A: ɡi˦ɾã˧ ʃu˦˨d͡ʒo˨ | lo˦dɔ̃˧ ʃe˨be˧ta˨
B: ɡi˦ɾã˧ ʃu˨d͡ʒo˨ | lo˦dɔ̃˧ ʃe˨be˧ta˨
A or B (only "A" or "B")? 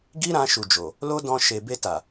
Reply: B